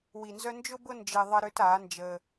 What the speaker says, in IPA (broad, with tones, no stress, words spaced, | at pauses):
wi˨˩nzœ˦ nd͡ʒʊ˦bʊ˦ nd͡ʒɪ˦ ðˤəː˦ɾʏː˦taː˩˥ nd͡ʒəː˦